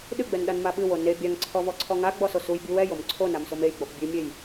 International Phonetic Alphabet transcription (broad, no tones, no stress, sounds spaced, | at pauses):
ɗ ɨ ɡ͡b ɛ n ɗ a n m a ɓ ɨ w o n e bʲ a ŋ ǀʰ ɔ v ɔ ǀʰ ɔ ŋ a ɡ͡b ɔ s o s u j bʲ u w ɛ j o m ǀʰ o n a m s o m e j ɡ͡b ɔ p bʲ ɨ mʲ e j